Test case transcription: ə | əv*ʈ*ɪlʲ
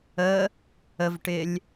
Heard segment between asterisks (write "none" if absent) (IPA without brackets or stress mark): ʈ